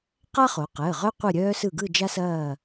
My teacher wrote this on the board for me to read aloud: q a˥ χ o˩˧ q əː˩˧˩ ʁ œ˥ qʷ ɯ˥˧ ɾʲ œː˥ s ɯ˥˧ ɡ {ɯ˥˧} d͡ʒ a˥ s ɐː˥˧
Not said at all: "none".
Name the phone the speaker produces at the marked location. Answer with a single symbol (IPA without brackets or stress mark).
ɯ˥˧